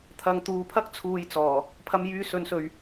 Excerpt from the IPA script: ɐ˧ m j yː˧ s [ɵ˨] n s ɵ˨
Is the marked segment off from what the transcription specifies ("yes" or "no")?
yes